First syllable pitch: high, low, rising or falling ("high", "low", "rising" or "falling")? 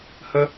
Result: high